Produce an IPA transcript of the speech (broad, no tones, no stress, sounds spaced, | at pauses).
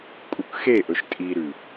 kʼ u k x e ʔ ɵ ʃ tʼ i ɾ ʉ